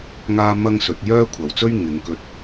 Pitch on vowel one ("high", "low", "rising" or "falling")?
high